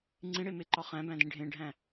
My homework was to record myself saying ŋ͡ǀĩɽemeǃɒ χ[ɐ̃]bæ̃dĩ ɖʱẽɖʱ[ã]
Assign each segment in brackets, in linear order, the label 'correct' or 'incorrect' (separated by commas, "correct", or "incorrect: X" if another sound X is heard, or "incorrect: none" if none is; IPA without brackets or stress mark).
incorrect: æ̃, incorrect: æ̃